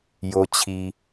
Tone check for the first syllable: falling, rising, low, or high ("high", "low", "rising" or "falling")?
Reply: low